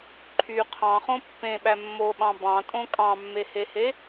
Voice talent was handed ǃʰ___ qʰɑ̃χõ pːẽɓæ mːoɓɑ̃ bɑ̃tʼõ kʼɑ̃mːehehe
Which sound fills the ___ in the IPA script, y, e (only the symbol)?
y